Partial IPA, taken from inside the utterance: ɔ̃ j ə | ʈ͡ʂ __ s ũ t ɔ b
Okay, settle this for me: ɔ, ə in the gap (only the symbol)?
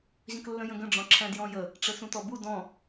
ə